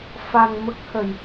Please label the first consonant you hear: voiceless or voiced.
voiceless